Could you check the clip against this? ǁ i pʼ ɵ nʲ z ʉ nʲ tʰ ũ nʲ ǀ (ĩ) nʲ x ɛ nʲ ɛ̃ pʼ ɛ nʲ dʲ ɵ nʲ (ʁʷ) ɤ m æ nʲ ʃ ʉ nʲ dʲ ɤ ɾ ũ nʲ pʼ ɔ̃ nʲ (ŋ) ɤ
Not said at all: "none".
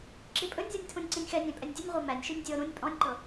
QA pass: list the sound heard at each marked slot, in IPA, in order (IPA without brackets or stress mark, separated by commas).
ĩ, ʁʷ, ǃ